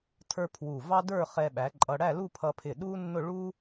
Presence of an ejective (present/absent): present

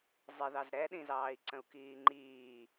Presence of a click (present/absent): present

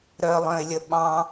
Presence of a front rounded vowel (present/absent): present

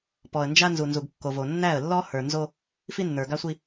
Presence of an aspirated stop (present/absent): absent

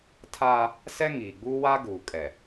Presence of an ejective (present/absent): present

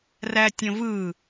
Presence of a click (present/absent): absent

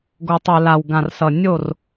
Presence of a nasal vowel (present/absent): present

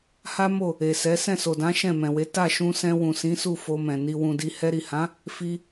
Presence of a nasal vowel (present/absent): present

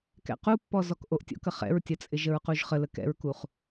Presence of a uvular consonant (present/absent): present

